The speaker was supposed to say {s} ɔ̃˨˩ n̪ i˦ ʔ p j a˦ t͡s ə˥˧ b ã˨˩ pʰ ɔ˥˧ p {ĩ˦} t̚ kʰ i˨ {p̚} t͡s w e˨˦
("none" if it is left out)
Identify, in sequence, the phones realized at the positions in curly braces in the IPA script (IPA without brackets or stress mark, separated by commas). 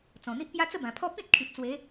t͡s, ĩ˦, p̚